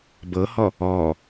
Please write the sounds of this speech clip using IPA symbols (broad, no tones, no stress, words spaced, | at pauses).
bɤhɔ | ɔ